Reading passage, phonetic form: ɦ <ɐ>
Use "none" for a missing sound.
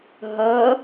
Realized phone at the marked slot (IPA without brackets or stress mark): ɐ